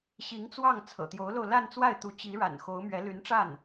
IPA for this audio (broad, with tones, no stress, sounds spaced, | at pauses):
ɕ i˧˥ ŋ t͡s w ɑ˥˩ ŋ t͡sʰ ɤ̰˨˩ t̪ j o˧˥ ʊ̯ l o˧ ʊ̯ l a˥˧ n t͡s w a˥˩ ɪ̯ t̪ u˧˥ t͡ɕ i˧˥ ɻ a̰˨˩ n x o˧˥ ʊ̯ m ɥ ɛ˧˥ l y˧˥ n ʈ͡ʂ a˥˩ n